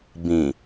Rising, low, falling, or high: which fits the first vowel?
low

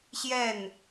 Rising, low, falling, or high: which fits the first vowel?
falling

